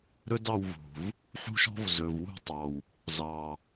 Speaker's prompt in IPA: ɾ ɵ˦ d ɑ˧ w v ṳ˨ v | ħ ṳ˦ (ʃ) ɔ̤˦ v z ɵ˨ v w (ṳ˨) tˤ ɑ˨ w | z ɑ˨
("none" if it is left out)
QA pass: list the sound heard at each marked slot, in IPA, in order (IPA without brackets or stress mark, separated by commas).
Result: ʃ, ṳ˦˨